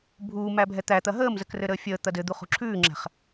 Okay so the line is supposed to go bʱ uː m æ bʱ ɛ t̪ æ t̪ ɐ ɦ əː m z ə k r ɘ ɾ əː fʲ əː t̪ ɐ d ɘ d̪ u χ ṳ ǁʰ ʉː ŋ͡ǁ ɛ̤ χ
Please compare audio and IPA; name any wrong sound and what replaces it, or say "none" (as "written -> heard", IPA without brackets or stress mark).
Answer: none